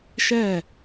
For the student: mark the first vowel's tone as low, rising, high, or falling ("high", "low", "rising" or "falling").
falling